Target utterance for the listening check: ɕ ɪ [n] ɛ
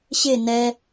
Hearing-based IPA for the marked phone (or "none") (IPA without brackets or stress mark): n